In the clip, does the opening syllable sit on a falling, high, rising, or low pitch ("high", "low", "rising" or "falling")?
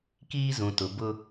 high